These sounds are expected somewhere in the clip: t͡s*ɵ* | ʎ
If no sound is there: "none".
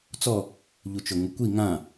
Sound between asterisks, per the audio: ɔ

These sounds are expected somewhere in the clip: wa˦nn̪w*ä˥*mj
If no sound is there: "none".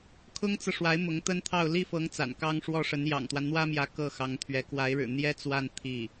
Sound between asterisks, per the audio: ä˥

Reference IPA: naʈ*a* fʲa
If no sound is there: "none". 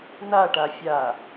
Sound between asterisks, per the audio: a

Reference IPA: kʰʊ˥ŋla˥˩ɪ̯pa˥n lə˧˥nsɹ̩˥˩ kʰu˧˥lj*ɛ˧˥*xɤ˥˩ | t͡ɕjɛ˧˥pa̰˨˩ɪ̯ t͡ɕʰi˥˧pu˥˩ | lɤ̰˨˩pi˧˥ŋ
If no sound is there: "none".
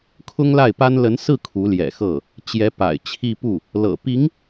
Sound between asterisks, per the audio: ɛ̰˨˩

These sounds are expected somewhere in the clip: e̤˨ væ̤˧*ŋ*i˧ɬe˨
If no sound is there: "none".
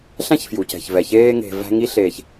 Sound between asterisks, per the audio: ŋ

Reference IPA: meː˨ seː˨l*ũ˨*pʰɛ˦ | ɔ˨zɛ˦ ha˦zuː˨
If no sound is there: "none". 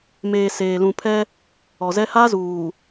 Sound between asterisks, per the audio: ũ˨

